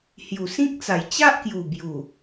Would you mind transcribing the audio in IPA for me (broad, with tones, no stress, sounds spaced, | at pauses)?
h j u˨˩ s ĩ˦ k̚ t͡s a˨˩ j t͡ɕ a˦ ʔ k j u˨˩ b j u˨˩